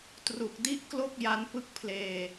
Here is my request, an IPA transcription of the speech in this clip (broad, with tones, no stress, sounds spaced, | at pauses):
t r u˨˩ k̚ d i˦˥ ʔ k l o˥˩ k̚ j a˦˥ n p ɯ˦˥ k̚ pʰ l eː˧